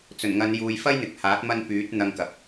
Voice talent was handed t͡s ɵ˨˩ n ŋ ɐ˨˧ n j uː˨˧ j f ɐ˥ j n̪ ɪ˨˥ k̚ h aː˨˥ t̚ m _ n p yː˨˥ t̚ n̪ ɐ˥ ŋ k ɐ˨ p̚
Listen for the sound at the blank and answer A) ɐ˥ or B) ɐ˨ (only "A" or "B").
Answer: A